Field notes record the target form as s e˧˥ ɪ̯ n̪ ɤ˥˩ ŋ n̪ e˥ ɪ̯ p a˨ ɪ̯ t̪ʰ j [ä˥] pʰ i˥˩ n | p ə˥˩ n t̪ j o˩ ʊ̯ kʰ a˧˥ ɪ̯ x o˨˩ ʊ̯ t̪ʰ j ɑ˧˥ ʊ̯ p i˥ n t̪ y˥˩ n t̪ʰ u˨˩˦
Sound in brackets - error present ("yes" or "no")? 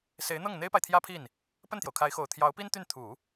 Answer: no